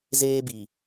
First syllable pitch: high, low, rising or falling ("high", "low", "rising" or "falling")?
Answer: high